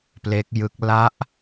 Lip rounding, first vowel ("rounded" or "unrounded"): unrounded